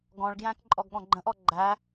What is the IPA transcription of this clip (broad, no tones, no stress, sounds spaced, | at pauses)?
ɡ ɔ̃ ɭ ɡ j æ̃ k ǃʼ ɔ ɡ ɠ ɔ̃ ɡ͡ǃ ə̃ ʔ ɔ ɡ͡ǃ æ